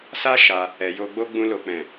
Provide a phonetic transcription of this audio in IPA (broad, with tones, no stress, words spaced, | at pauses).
sa˧ ʃa˧ | ɛ˨jo˧ɡ͡bo˦ ɡ͡bũ˧lo˨k͡pɛ̃˨